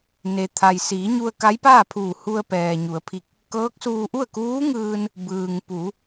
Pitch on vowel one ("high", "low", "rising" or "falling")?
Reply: low